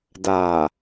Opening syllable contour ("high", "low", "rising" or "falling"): low